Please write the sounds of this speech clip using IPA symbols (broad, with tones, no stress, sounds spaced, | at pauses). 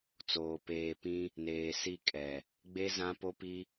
t͡s oː˨ p eː˨ p ĩ˦ | n eː˨ s i˦˨ kʼ ɛ˨ | ɡ͡b e˦ z ã˦ p o˦ p i˦